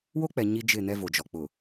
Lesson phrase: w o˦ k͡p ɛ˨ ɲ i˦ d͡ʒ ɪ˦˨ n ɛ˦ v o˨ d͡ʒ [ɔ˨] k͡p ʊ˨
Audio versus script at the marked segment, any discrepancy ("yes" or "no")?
no